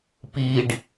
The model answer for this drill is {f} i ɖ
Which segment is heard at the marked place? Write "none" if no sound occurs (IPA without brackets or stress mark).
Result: p